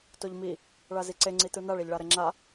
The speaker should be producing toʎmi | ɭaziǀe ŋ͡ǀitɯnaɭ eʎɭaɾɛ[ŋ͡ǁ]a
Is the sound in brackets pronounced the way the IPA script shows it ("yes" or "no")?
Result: yes